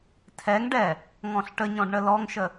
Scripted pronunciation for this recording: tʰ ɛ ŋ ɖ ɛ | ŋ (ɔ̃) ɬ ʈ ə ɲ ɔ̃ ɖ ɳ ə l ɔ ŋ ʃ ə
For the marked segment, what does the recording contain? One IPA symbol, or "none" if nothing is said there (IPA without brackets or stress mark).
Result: ɔ̃